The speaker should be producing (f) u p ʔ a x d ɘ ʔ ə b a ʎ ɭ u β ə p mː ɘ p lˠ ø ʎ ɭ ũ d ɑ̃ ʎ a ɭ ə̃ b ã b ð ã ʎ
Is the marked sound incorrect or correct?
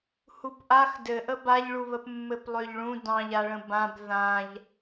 incorrect